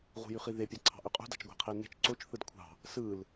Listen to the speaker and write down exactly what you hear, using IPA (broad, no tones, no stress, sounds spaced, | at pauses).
ʁ ṳ j y χ i ð e pʲ ɑ ǀʰ ɑ̤ ʔ y qʼ ṳ d ɑ̤ t͡ʃ ɡʷ æ̤ qʰ e n e̤ t͡ʃ ǀ o t͡ʃ θ ɯ d kʷʰ ɑ̤ | s ɯ l